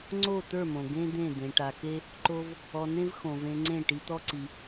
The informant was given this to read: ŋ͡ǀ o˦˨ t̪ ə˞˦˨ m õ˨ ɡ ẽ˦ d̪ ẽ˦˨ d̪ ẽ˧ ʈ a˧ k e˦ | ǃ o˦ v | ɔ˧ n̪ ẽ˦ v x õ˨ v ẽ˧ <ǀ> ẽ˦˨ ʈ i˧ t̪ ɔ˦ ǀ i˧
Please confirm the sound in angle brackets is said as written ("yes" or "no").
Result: no